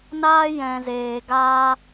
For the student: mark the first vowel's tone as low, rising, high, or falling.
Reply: high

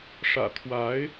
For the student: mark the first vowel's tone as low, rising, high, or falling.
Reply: low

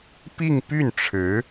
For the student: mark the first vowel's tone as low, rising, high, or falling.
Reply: falling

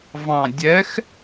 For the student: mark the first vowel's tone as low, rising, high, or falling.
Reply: low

